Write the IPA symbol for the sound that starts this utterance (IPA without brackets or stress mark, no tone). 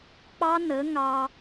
k͡p